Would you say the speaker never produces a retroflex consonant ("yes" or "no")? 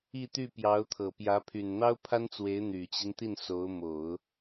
yes